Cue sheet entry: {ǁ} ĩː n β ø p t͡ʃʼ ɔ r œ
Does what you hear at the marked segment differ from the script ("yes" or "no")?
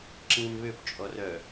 no